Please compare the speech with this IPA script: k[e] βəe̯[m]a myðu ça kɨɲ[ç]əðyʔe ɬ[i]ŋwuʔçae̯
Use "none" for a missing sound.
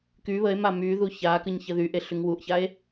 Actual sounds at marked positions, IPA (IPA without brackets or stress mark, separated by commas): y, m, ç, y